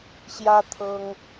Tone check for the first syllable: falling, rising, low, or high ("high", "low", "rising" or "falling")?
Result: high